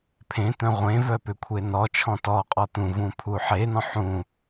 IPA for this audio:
pʰ ẽ t̪ œ̃ ʁʷ ẽ v œ p ʏ kʷʰ e n ɔ t͡ʃʰ ɔ̃ t ɔ qʼ ɔ t̪ ũ v ũ pʰ u ħ e n ɔ̃ ħ ũ

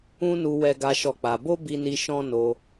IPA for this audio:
ũ˦ n u˧ w ɛ˦ ɡ a˦ ʃ ɔ˦˨ k͡p a˧ b o˦ b i˦ n i˦ ʃ ɔ̃˦ n o˧

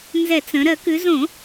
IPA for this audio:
n z ɛ˧˩˧ t͡s ə̃˩˧ ɾ ɜ˧˩˧ k ʉ˩˧ z õ˧˩˧

